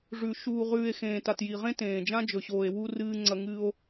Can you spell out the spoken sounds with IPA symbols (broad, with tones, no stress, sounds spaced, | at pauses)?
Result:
ʐ ʉ˨ ʃ uː˨ ʁ ʉː˨ e̯ x ẽː˨ t a˨ t j i˨ ʁ ẽ˦ t ẽː˨ d͡ʒ ã˦ d͡ʒ ɵ˨ ɕ oː˨ e̯ w u˦ r ɨː˦ ŋ͡ǀ ɐ˦ ŋ ɨ˦ o̯